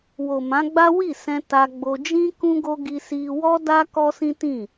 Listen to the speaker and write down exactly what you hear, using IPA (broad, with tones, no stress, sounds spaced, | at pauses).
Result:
w o˨ m ã˨˦ ɡ͡b a˦ w i˦˨ s ɛ̃˧ t a˧ ɡ͡b o˧ d͡ʒ ĩ˦ k ũ˦ ɡ o˦ ɡ i˧ s i˧ w ɔ˦ d a˦ k ɔ˦ s ĩ˦ t ĩ˦˨